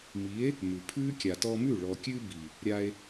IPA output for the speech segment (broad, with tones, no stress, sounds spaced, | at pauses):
m i˨˦ e̯ | m ʉ˨ pʰ ʉː˦ kʲ a˨ t ɔ˧ m ʉ˦˨ ɭ ɔ˨ kʲ ʉ˧ b i˨ | ɾʲ a˧ e̯